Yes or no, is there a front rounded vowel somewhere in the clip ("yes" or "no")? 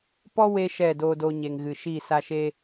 no